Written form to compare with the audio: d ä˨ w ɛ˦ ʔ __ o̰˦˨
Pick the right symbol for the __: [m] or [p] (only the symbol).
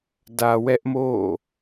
m